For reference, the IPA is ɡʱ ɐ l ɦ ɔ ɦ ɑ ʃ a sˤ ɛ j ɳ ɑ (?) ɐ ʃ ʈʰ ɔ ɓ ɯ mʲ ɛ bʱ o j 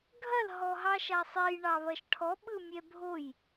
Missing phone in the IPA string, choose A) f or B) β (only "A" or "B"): B